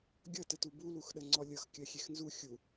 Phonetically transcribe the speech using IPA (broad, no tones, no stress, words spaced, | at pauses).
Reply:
ɡʲʌtətu buluxɗə ŋ͡ǀɔlʲʌx kʲɜxʲexnzu xʲu